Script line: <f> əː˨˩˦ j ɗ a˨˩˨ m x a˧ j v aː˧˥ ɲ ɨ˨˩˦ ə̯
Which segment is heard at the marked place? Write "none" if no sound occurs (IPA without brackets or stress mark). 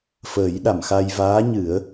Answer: f